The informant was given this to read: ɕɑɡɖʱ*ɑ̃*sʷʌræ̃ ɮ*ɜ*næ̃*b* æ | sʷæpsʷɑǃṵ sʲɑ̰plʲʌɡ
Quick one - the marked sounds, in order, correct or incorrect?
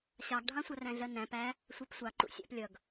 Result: correct, correct, incorrect: p

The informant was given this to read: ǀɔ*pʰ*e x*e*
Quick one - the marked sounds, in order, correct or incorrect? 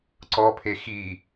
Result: correct, incorrect: i

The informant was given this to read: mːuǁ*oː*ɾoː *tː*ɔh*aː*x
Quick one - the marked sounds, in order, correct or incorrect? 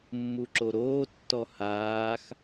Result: incorrect: o, correct, correct

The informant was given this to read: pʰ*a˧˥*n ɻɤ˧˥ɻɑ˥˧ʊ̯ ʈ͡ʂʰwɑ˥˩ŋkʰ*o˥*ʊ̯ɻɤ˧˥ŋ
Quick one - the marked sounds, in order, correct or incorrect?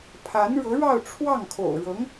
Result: correct, incorrect: o̰˨˩

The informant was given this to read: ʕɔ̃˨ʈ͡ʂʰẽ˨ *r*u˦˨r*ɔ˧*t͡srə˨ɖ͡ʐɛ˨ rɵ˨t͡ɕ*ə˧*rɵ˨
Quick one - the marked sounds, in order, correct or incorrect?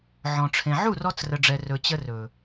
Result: incorrect: ʕ, correct, correct

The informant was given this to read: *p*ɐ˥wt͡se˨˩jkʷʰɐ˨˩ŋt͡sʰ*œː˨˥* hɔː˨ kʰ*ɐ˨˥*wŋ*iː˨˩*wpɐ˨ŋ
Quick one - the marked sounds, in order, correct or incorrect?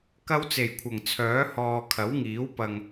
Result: incorrect: k, correct, correct, incorrect: iː˨˥

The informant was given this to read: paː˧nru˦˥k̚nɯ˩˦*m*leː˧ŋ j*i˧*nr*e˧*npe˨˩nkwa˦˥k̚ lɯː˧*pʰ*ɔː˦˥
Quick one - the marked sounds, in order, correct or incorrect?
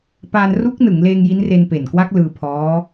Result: incorrect: ŋ, incorrect: i˦˥, correct, correct

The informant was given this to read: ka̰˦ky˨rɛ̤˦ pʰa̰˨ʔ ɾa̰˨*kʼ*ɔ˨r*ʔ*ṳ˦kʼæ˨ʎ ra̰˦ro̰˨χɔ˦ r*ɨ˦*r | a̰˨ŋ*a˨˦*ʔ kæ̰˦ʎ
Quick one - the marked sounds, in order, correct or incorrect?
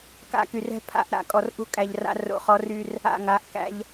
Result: correct, correct, incorrect: y˦, correct

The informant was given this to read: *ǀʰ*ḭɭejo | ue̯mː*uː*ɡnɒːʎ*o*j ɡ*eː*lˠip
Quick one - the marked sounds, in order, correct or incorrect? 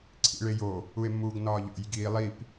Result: correct, correct, incorrect: o̰, incorrect: iː

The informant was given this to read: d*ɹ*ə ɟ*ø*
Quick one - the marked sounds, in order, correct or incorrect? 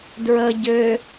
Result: correct, correct

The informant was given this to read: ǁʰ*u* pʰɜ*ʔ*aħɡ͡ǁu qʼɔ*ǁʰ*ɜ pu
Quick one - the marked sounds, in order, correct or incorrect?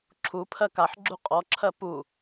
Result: correct, incorrect: k, correct

